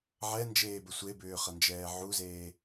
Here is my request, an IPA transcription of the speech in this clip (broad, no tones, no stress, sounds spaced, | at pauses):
ʕ ɛ n d͡ʒ eː b ə sʷ e b ʏː χ ʌ n d͡ʒ ɛː ʕ u z eː